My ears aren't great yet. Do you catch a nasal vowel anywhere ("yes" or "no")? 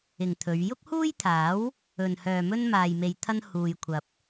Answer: no